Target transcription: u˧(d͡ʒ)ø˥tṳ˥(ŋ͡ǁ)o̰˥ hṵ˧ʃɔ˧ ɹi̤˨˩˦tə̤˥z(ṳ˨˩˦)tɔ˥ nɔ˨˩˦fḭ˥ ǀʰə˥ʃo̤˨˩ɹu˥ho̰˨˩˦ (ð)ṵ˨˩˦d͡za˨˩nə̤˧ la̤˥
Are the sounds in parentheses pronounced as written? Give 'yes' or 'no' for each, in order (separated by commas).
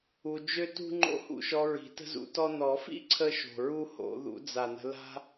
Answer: yes, no, no, yes